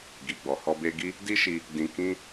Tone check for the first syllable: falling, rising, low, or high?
low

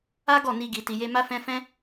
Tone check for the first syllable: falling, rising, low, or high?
high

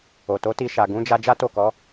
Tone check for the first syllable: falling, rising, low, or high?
low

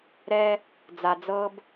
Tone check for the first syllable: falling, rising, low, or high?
high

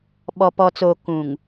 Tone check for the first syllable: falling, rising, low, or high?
low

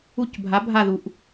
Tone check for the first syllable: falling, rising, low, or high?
falling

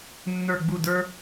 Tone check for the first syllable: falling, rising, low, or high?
falling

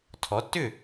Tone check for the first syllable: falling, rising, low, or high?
rising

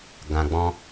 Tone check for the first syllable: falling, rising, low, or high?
low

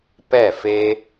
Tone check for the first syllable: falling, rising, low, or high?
falling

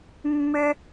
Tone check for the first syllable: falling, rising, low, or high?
low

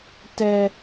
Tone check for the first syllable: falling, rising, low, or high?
high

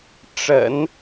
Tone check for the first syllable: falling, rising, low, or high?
low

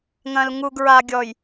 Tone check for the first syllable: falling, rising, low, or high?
low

